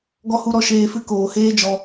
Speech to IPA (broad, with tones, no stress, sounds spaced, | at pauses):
ɡ ɔ˧ h u˧ ɾ ɔ˧ ʃ eː˧ f ɨ˦ k oː˨ h eː˦ d͡ʒ ɔ˧